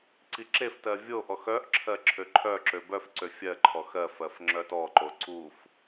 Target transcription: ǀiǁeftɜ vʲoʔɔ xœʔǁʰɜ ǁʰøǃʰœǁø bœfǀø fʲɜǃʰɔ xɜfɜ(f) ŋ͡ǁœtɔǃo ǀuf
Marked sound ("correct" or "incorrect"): correct